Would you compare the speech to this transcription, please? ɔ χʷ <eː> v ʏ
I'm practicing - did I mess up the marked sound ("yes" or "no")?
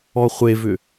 yes